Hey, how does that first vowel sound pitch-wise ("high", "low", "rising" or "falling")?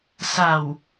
low